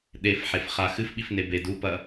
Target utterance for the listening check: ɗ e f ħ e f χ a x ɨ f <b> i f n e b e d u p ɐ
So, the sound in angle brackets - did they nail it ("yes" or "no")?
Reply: no